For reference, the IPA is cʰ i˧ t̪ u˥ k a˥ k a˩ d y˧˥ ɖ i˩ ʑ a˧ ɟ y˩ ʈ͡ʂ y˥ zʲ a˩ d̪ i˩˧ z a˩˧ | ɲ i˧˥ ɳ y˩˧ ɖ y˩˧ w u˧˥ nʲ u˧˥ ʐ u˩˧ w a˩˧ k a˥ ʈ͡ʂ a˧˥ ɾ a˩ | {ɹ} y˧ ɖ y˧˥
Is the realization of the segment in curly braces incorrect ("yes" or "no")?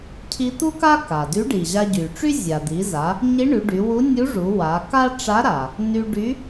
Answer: yes